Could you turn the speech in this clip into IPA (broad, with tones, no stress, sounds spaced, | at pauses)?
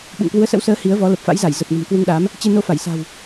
ɓ ṵ˧˨ ŋ k w u˨˦ ə̯ s ə̰˧˥ w s əː˨˦ h i˨˦ ə̯ v ɔ˨˦ l ə˨˩ p̚ f a̰˧˥ j z a˧˩ j z ə˨˩ p̚ n ə̤˨˩ m k w u˧ ŋ ɗ a˨˦ m | t͡ɕ e˧ n o˧ f a˧˩ j s a̤˨˩ w